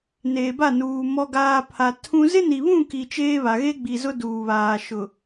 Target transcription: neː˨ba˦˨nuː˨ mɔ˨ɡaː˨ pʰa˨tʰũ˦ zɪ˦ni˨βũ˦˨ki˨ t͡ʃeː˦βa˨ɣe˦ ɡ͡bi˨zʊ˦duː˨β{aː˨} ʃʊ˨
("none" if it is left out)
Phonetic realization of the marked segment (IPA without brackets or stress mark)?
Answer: aː˨